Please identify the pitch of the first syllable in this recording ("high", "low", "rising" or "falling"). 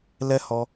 high